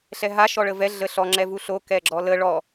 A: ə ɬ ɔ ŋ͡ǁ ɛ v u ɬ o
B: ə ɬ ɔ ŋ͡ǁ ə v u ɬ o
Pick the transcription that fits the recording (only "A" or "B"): A